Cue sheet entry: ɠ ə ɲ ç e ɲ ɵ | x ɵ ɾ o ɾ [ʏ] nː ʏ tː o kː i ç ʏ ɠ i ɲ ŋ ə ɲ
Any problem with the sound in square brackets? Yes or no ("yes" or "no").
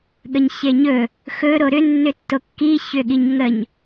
no